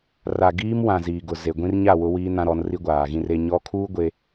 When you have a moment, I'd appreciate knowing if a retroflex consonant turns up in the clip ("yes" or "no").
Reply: no